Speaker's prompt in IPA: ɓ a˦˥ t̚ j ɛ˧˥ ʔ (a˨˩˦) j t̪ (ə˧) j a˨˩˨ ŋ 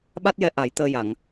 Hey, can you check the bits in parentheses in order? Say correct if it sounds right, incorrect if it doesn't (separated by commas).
correct, incorrect